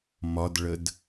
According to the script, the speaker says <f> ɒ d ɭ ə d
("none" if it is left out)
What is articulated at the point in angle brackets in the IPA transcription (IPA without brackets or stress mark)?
m